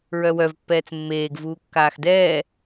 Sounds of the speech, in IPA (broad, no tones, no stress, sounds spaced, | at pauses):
ɹ œ w œ v pː ɛː t͡s mː eː ɡ v uː kː aː x d ɛː